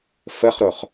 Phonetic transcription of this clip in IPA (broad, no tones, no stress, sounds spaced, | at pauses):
f ə χ ɾ o χ